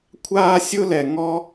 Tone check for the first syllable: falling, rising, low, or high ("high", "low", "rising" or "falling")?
high